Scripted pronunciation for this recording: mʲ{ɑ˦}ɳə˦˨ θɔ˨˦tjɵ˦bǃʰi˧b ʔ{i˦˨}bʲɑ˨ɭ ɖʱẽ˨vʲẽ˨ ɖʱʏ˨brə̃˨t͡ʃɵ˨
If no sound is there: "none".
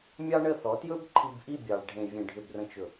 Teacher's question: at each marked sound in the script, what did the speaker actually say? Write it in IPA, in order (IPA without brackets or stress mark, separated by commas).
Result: ɑ˦, i˦˨